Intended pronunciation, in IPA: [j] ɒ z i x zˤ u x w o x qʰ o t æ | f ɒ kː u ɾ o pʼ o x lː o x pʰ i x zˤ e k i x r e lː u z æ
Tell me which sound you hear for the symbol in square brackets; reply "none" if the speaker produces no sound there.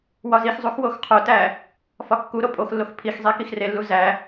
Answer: w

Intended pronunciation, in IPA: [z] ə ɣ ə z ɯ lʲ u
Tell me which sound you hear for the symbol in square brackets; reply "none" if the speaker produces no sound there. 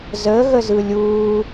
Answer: z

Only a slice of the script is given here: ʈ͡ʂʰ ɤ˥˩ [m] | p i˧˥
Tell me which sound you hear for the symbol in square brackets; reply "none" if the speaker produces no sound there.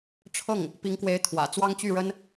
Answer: ŋ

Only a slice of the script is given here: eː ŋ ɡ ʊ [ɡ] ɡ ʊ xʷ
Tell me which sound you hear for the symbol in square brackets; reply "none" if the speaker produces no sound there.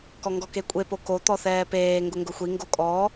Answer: ŋ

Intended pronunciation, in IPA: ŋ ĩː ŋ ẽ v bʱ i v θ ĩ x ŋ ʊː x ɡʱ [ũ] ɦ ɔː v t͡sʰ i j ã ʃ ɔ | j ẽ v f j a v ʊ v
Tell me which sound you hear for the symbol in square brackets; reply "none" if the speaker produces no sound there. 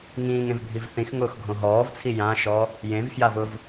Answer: õ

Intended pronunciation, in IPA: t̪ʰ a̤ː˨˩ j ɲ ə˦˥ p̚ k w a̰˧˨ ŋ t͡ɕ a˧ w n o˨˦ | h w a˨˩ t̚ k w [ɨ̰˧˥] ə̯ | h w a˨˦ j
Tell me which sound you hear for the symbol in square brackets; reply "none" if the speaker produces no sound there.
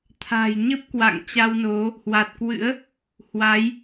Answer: ɨ̰˧˥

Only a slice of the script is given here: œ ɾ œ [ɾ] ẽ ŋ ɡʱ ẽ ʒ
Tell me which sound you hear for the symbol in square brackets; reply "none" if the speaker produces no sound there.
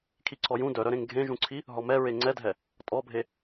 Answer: ɾ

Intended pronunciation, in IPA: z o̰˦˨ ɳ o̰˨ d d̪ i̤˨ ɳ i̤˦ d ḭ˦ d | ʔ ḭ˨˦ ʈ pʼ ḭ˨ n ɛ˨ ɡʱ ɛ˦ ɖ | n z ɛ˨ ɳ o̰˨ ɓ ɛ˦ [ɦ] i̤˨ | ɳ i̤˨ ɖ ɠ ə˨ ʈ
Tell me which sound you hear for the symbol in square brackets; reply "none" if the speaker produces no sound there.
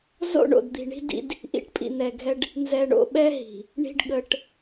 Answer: ɦ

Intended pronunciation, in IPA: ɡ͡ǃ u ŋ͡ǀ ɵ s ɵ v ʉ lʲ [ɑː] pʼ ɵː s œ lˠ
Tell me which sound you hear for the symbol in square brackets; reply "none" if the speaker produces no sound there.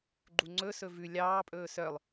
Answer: ɑː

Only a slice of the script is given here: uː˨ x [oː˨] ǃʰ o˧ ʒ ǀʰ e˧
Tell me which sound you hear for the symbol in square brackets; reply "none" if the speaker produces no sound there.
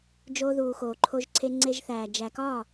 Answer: oː˨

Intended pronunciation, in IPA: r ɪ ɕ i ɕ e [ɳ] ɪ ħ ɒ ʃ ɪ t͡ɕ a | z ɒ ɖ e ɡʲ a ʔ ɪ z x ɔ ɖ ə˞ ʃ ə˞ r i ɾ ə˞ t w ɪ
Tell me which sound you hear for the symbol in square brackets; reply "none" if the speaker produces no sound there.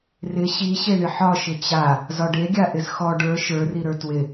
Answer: ɳ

